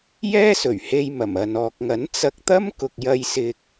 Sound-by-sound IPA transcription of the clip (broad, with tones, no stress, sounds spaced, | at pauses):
j ɛː˥ s ɵ˨˩ ɥ h e˧ j m ɐ˨˩ m ɐ˨ n ɔː˨ k̚ ŋ ɐ˨˥ n t͡s ɐ˧ k̚ t̪ ɐ˥ m k ʊ˨ k̚ j ɐ˧ j s ɪ˧ k̚